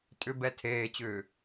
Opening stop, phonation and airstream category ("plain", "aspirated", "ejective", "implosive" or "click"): ejective